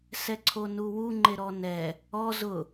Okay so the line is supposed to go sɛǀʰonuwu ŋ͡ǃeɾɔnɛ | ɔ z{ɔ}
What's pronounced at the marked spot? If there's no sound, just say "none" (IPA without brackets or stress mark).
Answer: ʊ